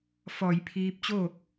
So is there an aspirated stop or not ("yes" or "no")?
yes